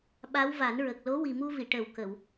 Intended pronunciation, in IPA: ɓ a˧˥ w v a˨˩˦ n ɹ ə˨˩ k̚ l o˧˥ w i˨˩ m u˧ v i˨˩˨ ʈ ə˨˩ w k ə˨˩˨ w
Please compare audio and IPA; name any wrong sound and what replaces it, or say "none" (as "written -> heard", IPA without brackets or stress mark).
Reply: none